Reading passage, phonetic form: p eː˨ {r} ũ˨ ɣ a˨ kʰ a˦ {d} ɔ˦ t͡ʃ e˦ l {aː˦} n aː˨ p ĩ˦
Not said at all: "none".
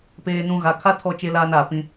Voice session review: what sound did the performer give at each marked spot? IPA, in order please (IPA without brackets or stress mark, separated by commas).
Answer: n, tʰ, aː˦